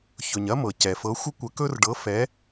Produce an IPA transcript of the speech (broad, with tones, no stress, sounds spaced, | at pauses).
ç ɵ˩ ɲ ɐ˥ m ɤ˩ c ɛ˩ f ɤ˨˥ xʷ ə˥ kʷ ə˨˥ k ɵ˥ r ɖ ɤ˨˥ f ɛ˨˥